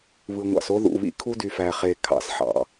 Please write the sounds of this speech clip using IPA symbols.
β ɯ˨ ŋʷ ɑ̰˨ s o˦ ð ṵ˨ β ḭ˦ kʰ u˦ d y˨ f æ˨ χ e˨ kʰ ɑ̰˨˦ s ħ ɑ̰˨

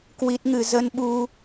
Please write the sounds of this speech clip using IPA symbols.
k w i˦˥ t̚ ŋ ɨ˧ z ə˧ n ɓ u˧

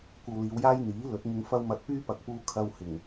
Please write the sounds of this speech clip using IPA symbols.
kʷ ɐ˧ w l iː˨˧ w j aː˥ j n̪ iː˨˥ l ɵ˨˥ t̚ ŋ ɪ˧ ŋ f ɐ˥ w m ɐ˧ t̚ p yː˥ p ɐ˨ k̚ p uː˧ kʰ ɐ˧ w h ɪ˨˩ ŋ

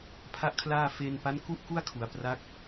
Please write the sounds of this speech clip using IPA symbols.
pʰ a˥˩ ʔ kʰ l aː˥˩ f e˧ n p a˦˥ n k u˥˩ ʔ k u˥˩ a̯ kʰ u˩˦ a̯ p r a˦˥ k̚

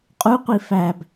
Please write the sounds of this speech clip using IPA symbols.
qʼ u qʷ i f æ b

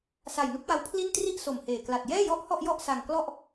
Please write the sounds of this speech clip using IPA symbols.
s a˨˩ j n u˦˥ k̚ w a˦˥ w pʰ l i˥˩ n t r i˥˩ ʔ s o˨˩ m h eː˨˩ k l a˨˩ t̚ j ɛː˥˩ j ɔ˥˩ ʔ h ɔ˥˩ ʔ j ɔ˥˩ ʔ s a˧ ŋ k l ɔ˥˩ ʔ

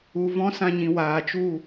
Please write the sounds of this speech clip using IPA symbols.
u˨ v ɔ̃˦ s ã˧ ɲ ĩ˨ w aː˨ t͡ʃ u˦˨

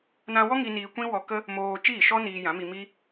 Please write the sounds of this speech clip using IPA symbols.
n ã˧ w ɔ˦ ŋ i˧ n iː˧ kʷ ĩ˦ w ɔ˧ k ə˦ | m oː˧ t͡ʃ iː˦˨ ʃ ɔ˦ n iː˧ j ã˨˦ m i˧ m i˦

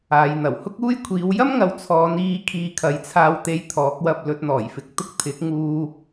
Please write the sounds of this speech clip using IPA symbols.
aː˨ j n̪ ɐ˨˩ w h ʊ˥ k̚ uː˥ j kʷʰ iː˨˧ w j ɐ˥ m ŋ ɐ˨˧ w t͡sʰ ɔː˨˧ n iː˧ kʰ iː˧ kʰ ɐ˨˥ j t͡sʰ aː˧ w t̪ e˧ j t̪ʰ ɔː˨˥ k̚ w ɐ˧ p̚ l ɵ˨ t̚ n̪ ɔː˨˩ j f ɪ˨ k̚ t̪ ʊ˥ k̚ t̪ʰ ɪ˨˥ k̚ ŋ uː˧

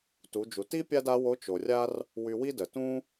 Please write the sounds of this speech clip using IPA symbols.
t u˩˧ d͡ʒ u˩ t i˥ pʲ a˥ d a˧˥ w o˧˥ t͡ʃ o˩ rʲ a˥ r | w y˧ w i˥ d ə˩ t ũ˥

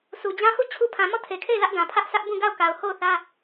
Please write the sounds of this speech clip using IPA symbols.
s u˨ d͡ʑ ã˦ h u˦˨ t͡ɕʰ u˦ pʰ ã˨ m ɔ˦˨ tʰ e˨ kʰ e˦˨ ɪ̯ l ä˦ ʔ ɡ ã˨ pʰ ä˦ ʔ sʰ ä˦ ʔ b ũ˦˨ ɡ a˦˨ ʊ̯ k a˨ ʊ̯ h o˦˨ ʊ̯ θ ä˦

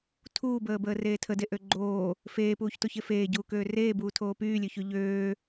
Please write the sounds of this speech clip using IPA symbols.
tʰ uː b əː b əː r eː tʰ ə d e ʔ ø ɡ͡ǃ oː | f eː p uː ç t o ç e f eː ɟ uː k øː r eː b uː tʰ oː p yː lʲ ø ç y ʎ øː

